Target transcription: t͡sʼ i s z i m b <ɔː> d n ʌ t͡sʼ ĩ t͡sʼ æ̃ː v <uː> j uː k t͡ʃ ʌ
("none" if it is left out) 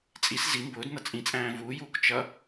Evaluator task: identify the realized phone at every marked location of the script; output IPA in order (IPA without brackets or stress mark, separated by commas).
ʊː, uː